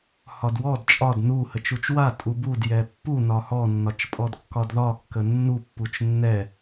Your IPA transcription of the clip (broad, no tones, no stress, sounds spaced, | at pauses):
h ɒ d w ɔ d t͡ʃʼ ɒ d n u h ə t͡ʃ u t͡ʃ w a tʼ u b u d j ɛ pː u n ɒ h ɔ nː ɒ t͡ʃ pʼ ɔ d kː ɒ d ð ɒ kː ə nː u pː u t͡ʃ nː ɛ